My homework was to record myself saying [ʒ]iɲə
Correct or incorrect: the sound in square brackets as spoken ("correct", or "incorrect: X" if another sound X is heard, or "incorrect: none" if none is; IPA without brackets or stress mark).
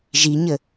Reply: correct